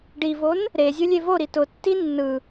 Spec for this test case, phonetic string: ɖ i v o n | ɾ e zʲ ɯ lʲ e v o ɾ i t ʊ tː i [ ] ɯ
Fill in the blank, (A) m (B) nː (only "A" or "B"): B